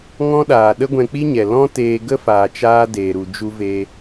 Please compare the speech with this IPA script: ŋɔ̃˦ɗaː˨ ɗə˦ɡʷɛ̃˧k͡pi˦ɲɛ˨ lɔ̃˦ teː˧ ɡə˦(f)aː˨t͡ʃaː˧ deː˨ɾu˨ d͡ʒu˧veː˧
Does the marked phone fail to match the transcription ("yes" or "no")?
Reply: no